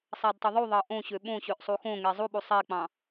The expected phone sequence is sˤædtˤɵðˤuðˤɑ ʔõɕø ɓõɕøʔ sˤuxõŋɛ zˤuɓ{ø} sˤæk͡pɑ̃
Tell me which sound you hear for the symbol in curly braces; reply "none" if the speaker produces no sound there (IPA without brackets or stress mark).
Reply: u